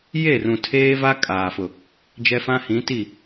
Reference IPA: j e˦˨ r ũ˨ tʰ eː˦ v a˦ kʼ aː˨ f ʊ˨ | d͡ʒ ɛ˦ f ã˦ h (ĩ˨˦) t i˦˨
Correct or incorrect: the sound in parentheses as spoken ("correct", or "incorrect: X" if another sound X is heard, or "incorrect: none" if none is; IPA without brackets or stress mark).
correct